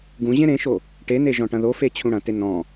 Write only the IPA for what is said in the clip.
ɡ ũ ʑ ẽ ɾ ẽ ʃ o | ʈ e n e ʒ ɔ̃ ʈ ɐ̃ ð o f e t͡ɕʰ ũ ɽ ɐ̃ t e n ɔ̃

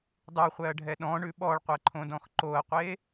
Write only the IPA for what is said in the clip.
dˤ ʉ χʷ ɛ ɐ̯ ɖʱ ɛ ɗ ɔ̃ ɳ ʉ ɓ ɔ ɭ qʷ ɛ ǃʰ õ d ɔ̃ x ǃ o ɐ̯ qʷ e

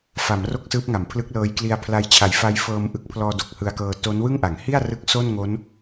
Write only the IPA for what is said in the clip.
f a˩˦ m r o˥˩ k̚ s ɯː˦˥ p̚ ŋ a˩˦ m pʰ l ɯ˦˥ k̚ l ɤː˦˥ j k l i˧ a̯ pʰ l a˧ j t͡ɕʰ a˨˩ j f a˧ j f ɤː˧ m ʔ ɯ˦˥ k̚ pʰ l ɔː˧ d o˨˩ k̚ h ɯ˧ a̯ k ɤː˧ t o˦˥ n w ɯ˥˩ ŋ ʔ a˩˦ ŋ h i˥˩ a̯ r ɯ˦˥ k̚ s o˥˩ n ŋ o˦˥ n

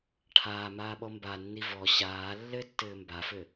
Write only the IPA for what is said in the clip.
ʈʰ aː m aː ɓ ɔ m b a nː i v ɔ ɕ aː lː ɘ tː ɘː m b a f ɘ

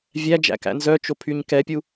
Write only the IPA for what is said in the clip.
vʲ æ d͡ʒ æ̰ k æ̰ n z œ t͡ʃ o pʰ y ɲ k ɛ pʲ u

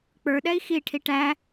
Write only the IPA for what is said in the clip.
k͡p ə˞ ɗ ɛ i̯ x i ʈʰ i ʈ æ

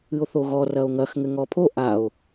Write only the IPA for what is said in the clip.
ɨ o̯ θ o ɣ ɔ r ɐ o̯ ŋ ɐ x ŋ ɘ ŋ ɔ pʰ o ʔ a o̯

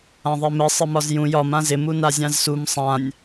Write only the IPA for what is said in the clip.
ã ðˤ e m ɘ sˤ ɘ m ɒ z j ũ j ɒ m ã z ɪ m u n a zʲ ã z s u m sˤ ã nʲ

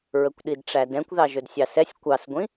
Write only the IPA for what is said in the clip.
ɹ ə kʷ ɗ i d ʈ͡ʂ æ d ɛ̃ kʷ ð ɑ ʒ ɵ d sʲ ɑ s ɛ sʲ kʷ ɑ s ɡʷ ĩ

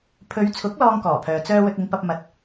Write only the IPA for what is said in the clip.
pʰ ɵ˨˧ ɥ t͡sʰ ʊ˨˥ k̚ l ɔː˥ ŋ k ɔː˨˩ pʰ œː˨ t͡s œː˥ w ɵ˧ t̚ ɪ˨˧ ŋ p ɐ˧ p̚ m ɐ˨ t̚

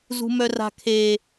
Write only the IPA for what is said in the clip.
z ṳ m œ r a̤ kʰ e

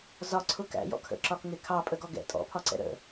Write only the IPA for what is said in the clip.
z ɒ ǀʰ ʊ k æ̰ j ɔ̰ kʰ ə̰ ǁ ɒ k ŋ ɪ kʰ ɑ pʼ ə ɡ ɔ ɡ ɛ̰ tʼ ɔ̰ pʰ ɒ ǀ ɛ̰ ɾ ə̰

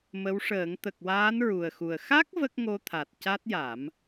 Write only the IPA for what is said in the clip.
m ə˧˥ w ʂ əː˨˩˦ ŋ t̪ ə˨˩ k̚ w aː˧˥ n ɹ u˨˩ ə̯ x u˨˩ ə̯ x a˦˥ k̚ v ə˦˥ k̚ ŋ o˧ t̪ʰ a˨˩ t̚ c a˦˥ t̚ j a˨˩˦ m

